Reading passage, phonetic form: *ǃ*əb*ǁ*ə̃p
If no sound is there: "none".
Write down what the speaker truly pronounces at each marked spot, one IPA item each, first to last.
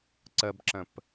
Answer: ǀ, ǁ

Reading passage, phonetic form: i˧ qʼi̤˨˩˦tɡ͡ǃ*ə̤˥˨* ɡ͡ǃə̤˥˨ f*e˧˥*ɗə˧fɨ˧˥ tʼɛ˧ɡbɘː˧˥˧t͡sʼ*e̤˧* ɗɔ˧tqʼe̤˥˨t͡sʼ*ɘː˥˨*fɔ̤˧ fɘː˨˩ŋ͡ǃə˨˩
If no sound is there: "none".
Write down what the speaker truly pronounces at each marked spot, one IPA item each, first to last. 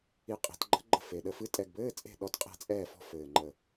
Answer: ə̤˧˥, e˨˩, e̤˥˨, ɛː˥˨

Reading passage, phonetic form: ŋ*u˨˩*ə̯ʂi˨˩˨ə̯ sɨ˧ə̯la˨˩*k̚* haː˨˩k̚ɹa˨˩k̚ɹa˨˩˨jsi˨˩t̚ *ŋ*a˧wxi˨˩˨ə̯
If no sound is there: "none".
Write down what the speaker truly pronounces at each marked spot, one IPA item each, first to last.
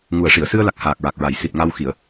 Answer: u˨˩, k̚, ŋ

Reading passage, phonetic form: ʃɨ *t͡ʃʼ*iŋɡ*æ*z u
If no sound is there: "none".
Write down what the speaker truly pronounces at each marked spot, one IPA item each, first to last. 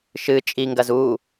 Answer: t͡ʃʼ, ɐ

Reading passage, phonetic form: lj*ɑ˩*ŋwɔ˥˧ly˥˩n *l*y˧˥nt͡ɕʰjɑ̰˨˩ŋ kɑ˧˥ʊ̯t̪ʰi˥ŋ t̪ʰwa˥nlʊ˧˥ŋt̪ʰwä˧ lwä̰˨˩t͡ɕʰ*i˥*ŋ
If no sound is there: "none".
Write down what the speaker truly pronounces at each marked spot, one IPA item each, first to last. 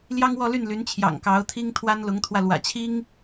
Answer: ɑ˥, l, i˥

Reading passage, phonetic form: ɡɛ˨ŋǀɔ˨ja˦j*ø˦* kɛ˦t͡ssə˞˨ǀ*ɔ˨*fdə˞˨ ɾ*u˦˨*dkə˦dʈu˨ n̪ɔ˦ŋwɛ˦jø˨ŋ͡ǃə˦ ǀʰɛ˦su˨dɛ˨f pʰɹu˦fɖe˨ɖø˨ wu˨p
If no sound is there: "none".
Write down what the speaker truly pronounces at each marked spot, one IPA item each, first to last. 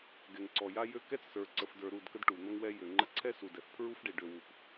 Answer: ø˦, ə˨, u˦˨

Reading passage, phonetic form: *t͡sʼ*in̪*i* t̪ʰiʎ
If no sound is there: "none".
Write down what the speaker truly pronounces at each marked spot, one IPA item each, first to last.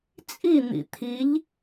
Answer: t͡sʼ, ḭ

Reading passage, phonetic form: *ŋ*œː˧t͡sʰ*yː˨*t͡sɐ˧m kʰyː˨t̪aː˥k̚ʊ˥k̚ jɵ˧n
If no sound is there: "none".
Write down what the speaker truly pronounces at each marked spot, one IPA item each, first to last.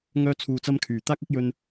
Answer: ŋ, uː˨

